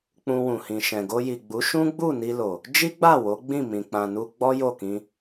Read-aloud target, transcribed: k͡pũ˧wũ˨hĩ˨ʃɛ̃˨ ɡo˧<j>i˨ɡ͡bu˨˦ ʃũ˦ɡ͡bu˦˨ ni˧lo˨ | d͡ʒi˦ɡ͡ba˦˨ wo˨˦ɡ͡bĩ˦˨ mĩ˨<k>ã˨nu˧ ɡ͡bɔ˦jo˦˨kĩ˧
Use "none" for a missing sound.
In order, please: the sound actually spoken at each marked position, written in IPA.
j, k͡p

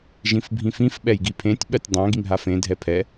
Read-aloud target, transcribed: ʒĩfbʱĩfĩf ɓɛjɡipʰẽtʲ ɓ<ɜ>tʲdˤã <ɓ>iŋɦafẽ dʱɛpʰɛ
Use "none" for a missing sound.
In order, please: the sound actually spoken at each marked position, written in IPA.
ɜ, ɡ

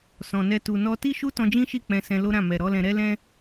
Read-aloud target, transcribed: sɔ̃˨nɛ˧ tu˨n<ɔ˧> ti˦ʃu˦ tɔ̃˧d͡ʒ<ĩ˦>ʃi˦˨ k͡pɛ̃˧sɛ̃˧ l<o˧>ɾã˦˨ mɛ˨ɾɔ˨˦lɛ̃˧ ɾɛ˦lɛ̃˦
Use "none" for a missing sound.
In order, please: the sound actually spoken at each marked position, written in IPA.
ɔ˧, ĩ˦, o˦

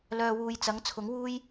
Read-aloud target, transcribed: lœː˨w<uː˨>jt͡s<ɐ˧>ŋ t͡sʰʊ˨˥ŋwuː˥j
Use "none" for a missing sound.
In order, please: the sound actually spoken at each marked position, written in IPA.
uː˨, ɐ˨˥

